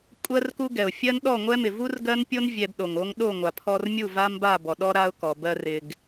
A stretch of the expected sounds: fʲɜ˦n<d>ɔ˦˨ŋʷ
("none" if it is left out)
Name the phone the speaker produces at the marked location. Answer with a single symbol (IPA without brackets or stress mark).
ɗ